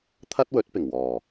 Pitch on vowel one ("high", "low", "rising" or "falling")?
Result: high